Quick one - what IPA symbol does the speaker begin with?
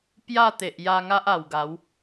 p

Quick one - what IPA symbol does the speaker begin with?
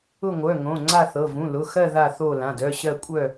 ʊ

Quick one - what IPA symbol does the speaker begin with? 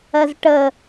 ɜ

